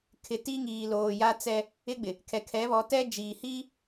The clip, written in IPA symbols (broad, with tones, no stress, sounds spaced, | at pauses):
kʰ ɪ˨ t i˦ ŋ iː˨ l oː˨ j a˦ t͡s ɛ˦ | ɪ˦ ɡ͡b ɪ˨ | kʰ ɛ˨ kʰ ɛ˨˦ β ɔ˨˦ t ɛ˦ d͡ʒ iː˨ h i˦